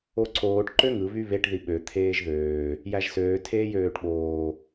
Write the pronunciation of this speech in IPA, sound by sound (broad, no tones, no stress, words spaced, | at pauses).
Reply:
oǀoːʈ ǃøŋɯ βyβeʈ ðiɓø t̪ʰeːʒðøː | jæʒsøː tʰeːjøːʈɓoː